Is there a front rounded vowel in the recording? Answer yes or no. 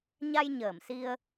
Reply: no